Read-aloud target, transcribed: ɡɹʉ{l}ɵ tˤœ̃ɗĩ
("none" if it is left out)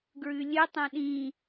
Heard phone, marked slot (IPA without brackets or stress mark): lʲ